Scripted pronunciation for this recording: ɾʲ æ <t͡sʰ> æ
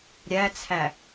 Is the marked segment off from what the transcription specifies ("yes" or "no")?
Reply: no